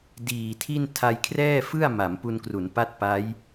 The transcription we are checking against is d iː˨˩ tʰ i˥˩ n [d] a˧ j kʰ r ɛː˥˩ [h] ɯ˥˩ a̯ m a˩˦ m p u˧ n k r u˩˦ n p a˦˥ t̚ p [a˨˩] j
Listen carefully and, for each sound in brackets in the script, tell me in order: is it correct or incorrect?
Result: incorrect: tʰ, incorrect: f, incorrect: a˦˥

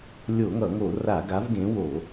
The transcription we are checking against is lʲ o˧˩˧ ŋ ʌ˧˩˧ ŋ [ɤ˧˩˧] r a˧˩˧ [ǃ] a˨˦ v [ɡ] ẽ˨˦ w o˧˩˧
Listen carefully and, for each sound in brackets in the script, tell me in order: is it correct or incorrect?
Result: incorrect: o˧˩˧, incorrect: ɡ, correct

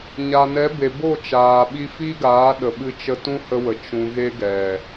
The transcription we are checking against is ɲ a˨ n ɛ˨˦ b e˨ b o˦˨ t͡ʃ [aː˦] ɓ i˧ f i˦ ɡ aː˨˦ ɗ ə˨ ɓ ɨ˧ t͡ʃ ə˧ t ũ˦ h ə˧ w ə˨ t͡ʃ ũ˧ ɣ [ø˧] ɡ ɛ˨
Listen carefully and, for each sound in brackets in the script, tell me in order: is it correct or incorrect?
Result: incorrect: aː˨, incorrect: e˧

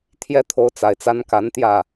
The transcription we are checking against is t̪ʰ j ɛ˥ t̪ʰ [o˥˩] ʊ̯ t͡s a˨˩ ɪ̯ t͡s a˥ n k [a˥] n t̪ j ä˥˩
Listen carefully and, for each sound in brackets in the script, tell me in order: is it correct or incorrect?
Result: incorrect: o˧˥, incorrect: a˧˥

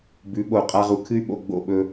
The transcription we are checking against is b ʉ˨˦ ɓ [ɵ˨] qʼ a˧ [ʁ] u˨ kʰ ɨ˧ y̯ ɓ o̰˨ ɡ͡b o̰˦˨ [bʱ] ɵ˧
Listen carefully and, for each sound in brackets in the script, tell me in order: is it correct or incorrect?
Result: incorrect: o˨, correct, incorrect: ɓ

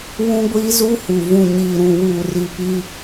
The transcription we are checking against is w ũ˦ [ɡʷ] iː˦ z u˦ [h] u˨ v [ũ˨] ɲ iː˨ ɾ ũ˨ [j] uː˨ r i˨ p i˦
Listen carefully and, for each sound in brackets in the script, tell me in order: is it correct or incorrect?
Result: correct, correct, correct, incorrect: w

